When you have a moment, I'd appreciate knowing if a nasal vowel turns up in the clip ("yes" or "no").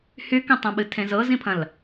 yes